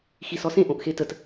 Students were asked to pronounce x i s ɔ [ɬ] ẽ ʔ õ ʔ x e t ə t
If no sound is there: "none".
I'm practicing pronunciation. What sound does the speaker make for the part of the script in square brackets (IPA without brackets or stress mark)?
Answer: s